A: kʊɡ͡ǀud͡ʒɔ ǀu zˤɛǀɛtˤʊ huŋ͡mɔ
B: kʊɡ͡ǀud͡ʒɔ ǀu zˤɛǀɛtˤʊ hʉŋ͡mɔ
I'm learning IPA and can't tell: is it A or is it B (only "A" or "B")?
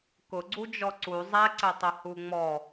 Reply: A